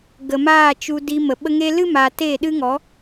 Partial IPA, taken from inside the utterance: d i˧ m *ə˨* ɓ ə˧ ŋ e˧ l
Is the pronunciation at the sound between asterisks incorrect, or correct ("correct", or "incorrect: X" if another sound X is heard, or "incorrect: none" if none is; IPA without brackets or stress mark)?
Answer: correct